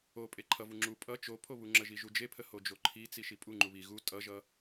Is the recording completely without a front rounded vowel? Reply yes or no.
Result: yes